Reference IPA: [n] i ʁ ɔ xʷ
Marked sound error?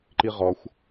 yes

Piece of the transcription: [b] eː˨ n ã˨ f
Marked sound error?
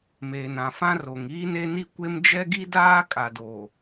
yes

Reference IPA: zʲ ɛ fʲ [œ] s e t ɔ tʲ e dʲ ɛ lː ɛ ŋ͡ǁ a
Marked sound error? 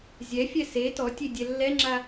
yes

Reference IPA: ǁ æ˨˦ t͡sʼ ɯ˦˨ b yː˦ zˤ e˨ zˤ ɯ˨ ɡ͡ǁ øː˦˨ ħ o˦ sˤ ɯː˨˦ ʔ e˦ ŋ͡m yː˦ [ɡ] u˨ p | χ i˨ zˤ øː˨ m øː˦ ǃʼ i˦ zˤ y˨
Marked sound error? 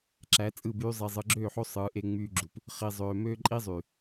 yes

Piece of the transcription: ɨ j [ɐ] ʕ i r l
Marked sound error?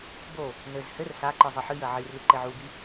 no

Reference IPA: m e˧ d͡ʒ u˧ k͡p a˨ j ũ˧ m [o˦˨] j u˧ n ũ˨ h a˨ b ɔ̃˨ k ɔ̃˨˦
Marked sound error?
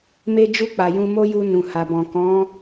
yes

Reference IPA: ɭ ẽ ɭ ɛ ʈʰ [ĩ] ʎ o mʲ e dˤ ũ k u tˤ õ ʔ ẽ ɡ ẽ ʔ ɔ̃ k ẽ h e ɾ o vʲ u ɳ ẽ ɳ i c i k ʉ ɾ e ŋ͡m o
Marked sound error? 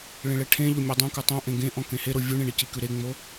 yes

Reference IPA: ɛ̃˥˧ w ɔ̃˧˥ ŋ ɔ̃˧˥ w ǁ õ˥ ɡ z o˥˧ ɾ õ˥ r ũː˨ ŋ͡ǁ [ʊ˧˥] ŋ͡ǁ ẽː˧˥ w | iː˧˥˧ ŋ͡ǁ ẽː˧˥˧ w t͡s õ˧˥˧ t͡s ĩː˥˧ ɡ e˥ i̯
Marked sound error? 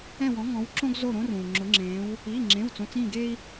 no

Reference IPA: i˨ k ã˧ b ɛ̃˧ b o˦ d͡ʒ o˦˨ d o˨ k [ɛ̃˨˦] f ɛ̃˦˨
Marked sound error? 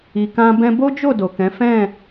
no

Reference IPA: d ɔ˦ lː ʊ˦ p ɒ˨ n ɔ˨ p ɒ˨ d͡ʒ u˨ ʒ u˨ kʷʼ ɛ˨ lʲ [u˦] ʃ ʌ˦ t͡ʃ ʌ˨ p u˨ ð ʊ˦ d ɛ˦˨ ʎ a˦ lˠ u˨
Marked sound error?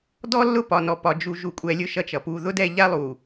yes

